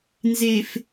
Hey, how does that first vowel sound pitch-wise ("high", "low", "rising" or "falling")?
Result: low